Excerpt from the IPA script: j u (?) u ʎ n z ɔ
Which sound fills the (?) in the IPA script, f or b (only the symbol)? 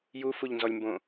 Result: f